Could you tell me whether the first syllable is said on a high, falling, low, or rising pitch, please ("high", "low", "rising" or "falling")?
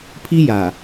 high